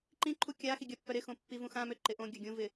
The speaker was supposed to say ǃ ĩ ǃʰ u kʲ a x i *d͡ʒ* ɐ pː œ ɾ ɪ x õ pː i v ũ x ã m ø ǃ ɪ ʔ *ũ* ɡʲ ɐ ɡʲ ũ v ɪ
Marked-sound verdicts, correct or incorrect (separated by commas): incorrect, incorrect